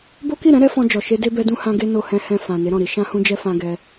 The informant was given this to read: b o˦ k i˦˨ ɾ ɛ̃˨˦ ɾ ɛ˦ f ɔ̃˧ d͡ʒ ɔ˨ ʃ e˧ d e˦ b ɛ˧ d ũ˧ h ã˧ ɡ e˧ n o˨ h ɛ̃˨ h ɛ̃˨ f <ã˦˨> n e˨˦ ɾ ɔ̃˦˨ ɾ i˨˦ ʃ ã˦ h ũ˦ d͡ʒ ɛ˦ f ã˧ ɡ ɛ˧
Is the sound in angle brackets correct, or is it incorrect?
incorrect